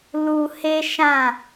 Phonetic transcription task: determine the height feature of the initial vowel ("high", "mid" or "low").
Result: high